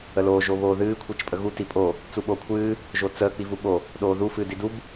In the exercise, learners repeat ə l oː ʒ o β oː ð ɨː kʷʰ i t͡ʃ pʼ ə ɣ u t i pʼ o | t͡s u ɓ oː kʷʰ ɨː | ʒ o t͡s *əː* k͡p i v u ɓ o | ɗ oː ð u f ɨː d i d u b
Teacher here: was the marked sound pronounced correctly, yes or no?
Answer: yes